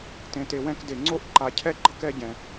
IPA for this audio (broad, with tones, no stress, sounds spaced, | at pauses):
t ẽ˨ t e˨ w ɛ̃˧ k d e˨ ŋ͡ǀ o˧ ʔ ǃ a˨ cʰ ɛ˦ ɡ͡ǃ ʌ˦ k ɛ˧ ɟ ɛ̃˨